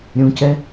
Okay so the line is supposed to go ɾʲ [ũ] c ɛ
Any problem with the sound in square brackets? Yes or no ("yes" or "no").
no